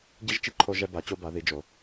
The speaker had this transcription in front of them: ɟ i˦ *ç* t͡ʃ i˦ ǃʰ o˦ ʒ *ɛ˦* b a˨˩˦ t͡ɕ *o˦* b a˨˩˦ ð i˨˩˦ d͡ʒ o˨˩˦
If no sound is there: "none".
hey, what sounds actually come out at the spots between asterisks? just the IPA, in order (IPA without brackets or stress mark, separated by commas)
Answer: ʒ, ɛ˦, o˦